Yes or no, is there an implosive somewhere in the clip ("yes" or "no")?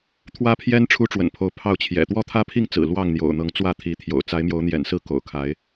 no